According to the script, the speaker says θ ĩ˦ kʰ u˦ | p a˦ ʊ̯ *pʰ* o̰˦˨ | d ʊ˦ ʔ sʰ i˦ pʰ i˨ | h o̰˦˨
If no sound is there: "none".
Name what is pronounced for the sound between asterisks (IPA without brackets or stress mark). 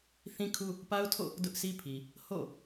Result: tʰ